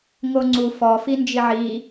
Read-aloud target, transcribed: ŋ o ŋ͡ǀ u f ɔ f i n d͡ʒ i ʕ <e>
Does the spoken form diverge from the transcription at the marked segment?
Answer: yes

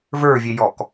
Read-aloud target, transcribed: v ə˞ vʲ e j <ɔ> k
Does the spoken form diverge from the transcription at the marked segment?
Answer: no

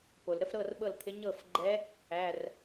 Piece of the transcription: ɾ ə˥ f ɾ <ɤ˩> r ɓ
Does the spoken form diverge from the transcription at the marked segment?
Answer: yes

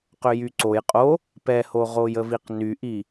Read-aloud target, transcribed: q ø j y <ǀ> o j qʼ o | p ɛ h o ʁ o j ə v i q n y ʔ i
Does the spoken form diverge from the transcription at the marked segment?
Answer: no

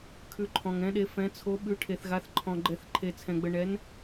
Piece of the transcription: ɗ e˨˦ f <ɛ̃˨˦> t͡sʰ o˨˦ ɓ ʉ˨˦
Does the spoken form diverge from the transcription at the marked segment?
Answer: no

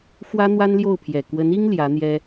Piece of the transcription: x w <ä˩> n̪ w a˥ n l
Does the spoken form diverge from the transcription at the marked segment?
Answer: yes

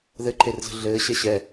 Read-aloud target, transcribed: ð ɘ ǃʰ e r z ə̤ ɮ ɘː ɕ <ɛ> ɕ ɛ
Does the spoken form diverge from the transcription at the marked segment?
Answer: no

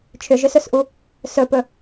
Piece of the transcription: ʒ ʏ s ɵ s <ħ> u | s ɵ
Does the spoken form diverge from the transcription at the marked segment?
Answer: yes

